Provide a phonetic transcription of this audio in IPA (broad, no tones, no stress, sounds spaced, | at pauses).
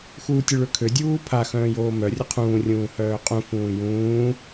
x uː tʲ ʊ ɭ ø kʰ ø dʲ uː pʰ a x œ̃ː j oː m œ rʲ ʊ qʰ ũː rʲ ũː h œː qʼ ũ f ũː j ũː